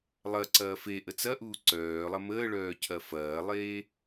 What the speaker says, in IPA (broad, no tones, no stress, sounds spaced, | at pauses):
lˠ ɐ ǀ ɐː f e ʔ ə t͡s ɐ ʔ uː ǀ œː lˠ ɐ m əː ɭ œː cʰ ɐ f ɐː lˠ eː